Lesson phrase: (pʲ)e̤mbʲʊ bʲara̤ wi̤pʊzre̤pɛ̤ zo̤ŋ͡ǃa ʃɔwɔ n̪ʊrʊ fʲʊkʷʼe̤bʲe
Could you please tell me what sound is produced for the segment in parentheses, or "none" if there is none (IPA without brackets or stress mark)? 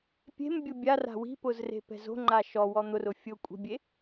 pʲ